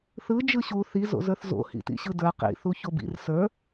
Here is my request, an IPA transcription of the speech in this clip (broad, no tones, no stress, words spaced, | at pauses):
θɯ d͡ʒɯɕu θi zo̰zə˞θzo̰ hḭtḭɕɯdə˞ qḭ θuçobḭr sə˞